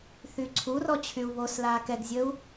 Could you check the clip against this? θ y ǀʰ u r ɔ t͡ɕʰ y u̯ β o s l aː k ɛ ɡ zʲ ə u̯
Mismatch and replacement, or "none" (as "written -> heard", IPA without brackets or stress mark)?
none